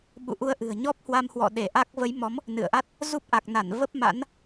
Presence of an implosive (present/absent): present